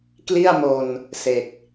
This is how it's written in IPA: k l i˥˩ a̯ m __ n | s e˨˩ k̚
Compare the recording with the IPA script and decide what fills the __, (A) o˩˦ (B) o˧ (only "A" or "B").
B